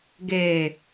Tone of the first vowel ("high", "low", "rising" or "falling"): low